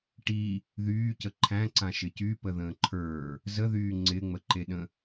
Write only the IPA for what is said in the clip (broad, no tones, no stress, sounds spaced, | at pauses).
ʈ i | ð yː c ə ǃʰ æ̃ ǀ ã ʃ ɪ c y p ə ð ə̃ː ǃʰ ə˞ | z ə ð yː ŋ͡ǀ ɪ ŋ͡m ə ǃ e ɗ ə̃